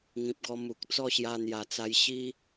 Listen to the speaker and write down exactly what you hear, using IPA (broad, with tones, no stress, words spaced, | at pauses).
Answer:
ŋĩ˨p̚ɡɔ˧ mu˨k̚ t͡sɔ˥˧ɕja˧n̪ja˨˩t͡sa˧j ɕi˦